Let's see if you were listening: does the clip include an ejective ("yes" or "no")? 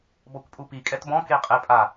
yes